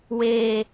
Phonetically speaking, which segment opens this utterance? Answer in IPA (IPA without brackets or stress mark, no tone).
w